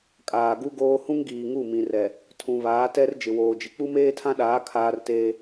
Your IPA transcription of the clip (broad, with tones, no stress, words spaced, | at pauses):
kʼaː˨ɡu˦ɡoː˦ hũ˦ŋɡiː˨ ŋu˦˨mĩ˨ rɛ˨ | tʰũ˨βaː˨˦ tɛ˦r d͡ʒɪ˨woː˨d͡ʒɪ˨ k͡pu˦meː˦tʰã˦ɗaː˨˦ kʰaː˦rteː˦